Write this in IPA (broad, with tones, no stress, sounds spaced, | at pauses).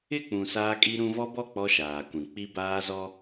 ɪ˦˨ k͡p ũ˨ s aː˦ kʼ i˦ ɾ ũ˦ v ɔ˦ b ɔ˦˨ k͡p ɔ˦ ʃ aː˨ kʷ ĩ˨ k͡p i˦ b aː˦ z ɔ˦